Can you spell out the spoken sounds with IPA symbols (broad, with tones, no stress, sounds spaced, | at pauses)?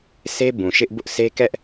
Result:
sʰ e˦ b ũ˨ ʃ ɪ˦ ʔ b ʊ˦ ʔ s e˦ k ɛ˦ ʔ